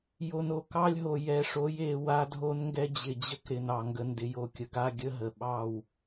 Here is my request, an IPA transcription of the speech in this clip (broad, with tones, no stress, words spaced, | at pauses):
jo˨no˨kɑ˦lʲɦo˨ jɛ˨ʂo˨˦je˨ wa˦dʱo˦nŋɡɛ˦ d͡ʑɪ˨d͡ʑə˦kɾɪ˨n ɑ˨ŋɡə˨ ndɪ˨jo˨kʲə˨ɡa˦˨ ɡʲə˦ɦə˨ɓɑ˦˨w